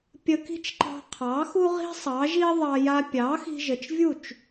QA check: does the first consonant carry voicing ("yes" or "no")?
no